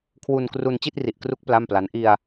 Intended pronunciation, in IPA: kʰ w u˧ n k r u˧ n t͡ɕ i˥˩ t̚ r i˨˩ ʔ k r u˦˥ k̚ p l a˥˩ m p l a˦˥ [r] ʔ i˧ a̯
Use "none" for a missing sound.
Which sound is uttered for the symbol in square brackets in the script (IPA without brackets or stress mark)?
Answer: n